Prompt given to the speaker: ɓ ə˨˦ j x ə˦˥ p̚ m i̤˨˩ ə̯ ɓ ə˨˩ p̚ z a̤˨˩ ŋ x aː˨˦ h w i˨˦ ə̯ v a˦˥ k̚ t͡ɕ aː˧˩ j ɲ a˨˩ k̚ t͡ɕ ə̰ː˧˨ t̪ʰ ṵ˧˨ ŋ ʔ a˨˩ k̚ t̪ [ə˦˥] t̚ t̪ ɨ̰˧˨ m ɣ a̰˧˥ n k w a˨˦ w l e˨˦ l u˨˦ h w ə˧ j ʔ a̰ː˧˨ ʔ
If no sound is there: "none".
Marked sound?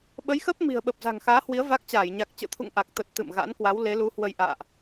ə˨˩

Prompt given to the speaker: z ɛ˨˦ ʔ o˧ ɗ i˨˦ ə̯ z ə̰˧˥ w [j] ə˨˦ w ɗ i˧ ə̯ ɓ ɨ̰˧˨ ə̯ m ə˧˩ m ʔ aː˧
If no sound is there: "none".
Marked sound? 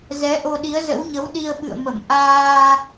ɲ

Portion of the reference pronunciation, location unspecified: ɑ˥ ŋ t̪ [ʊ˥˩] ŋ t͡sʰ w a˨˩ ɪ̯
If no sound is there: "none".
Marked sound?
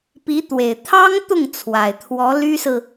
ʊ˥˩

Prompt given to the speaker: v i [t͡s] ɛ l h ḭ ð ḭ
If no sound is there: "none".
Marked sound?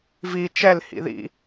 t͡ʃ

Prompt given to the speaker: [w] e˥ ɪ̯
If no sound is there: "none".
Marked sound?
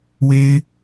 w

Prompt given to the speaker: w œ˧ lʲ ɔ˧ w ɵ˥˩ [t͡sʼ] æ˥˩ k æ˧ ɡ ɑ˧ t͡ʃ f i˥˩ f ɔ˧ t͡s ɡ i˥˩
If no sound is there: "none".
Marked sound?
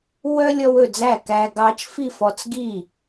d͡z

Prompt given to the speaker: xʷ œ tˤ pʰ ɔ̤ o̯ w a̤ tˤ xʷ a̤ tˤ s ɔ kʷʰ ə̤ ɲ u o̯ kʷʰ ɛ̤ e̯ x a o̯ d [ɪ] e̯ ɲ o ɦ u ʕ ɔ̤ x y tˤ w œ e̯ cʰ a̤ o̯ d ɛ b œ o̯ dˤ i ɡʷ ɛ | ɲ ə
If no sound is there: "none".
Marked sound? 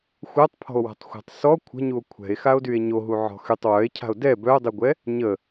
y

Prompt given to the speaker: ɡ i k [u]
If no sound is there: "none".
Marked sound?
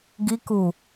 u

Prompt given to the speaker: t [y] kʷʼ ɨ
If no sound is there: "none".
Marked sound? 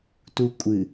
u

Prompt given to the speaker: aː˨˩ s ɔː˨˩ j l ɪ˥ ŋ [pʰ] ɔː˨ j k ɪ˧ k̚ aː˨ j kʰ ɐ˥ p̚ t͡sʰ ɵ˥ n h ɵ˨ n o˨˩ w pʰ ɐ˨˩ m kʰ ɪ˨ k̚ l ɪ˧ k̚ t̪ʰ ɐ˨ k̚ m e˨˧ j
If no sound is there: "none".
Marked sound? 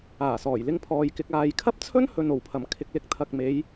pʰ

